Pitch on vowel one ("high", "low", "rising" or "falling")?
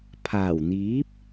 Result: low